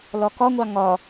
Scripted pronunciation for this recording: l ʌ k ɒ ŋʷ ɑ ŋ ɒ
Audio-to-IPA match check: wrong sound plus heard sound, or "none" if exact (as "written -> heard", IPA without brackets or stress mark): ʌ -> ɒ